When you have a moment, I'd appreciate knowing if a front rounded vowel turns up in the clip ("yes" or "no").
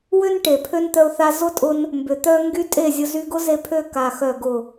yes